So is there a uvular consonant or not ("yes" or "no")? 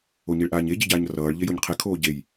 yes